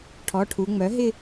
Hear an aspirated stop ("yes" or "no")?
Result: yes